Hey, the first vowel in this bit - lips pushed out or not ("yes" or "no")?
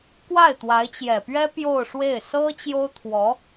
no